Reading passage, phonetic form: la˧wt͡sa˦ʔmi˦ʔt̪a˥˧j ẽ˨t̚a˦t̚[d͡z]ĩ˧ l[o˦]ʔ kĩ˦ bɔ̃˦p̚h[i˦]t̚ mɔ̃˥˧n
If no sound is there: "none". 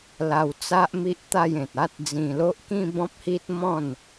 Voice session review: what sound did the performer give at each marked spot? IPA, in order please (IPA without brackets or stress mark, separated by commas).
d͡z, o˦, i˦